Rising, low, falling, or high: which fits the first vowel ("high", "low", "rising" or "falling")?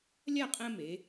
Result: falling